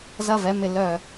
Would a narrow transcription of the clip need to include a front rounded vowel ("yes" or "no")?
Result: yes